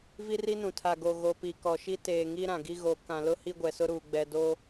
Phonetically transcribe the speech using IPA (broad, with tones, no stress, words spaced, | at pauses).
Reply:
vi˦ri˦nũ˨ tʰa˨ɡo˨ ɣo˨pi˨ kɔ˨ʃi˦ teː˨ŋi˦ɾã˨ɡi˦ ɣo˨ kã˨lʊ˦ hi˦ɡʷɛ˨sʊ˦ɾuː˨ ɡ͡bɛ˨do˦